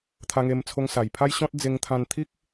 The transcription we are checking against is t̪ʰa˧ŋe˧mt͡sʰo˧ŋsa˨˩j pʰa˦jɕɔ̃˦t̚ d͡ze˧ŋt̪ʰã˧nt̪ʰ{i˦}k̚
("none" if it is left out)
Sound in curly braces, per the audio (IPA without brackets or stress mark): i˦